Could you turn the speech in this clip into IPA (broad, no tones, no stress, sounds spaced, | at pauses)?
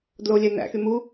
d l o lʲ æ n æ̰ x y m u